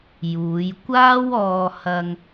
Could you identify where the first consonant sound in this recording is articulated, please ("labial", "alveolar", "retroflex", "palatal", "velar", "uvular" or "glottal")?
palatal